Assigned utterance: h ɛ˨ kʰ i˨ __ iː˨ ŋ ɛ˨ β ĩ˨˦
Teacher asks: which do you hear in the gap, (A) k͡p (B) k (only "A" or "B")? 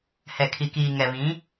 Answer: B